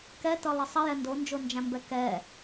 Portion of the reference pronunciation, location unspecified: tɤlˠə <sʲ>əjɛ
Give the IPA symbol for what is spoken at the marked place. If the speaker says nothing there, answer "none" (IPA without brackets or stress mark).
sˤ